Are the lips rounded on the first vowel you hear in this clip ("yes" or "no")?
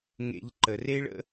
no